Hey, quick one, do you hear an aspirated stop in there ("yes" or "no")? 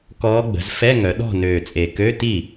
no